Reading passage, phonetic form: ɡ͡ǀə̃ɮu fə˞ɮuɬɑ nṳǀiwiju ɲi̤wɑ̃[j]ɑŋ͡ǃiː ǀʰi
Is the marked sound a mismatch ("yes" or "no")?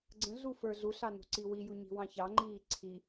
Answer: yes